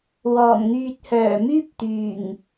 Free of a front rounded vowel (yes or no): no